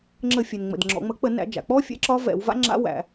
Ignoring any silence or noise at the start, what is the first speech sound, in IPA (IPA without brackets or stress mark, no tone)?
ŋ͡ǁ